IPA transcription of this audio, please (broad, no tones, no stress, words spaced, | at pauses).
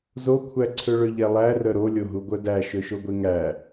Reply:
zokʷʰæǀʰø ɭøʎɛlˠærœ ɾolʲo ɦuɡʷœdæ ʃøʃoɡʷeŋæ